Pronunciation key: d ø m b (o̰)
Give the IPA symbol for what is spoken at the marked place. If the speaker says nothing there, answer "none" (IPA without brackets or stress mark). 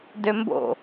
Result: o̰